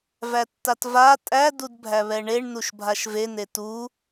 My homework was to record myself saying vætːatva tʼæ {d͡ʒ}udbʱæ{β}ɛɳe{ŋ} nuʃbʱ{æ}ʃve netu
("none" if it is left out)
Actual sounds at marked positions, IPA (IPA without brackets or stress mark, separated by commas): d, β, ɳ, a